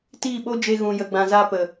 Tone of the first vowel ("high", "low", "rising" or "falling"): falling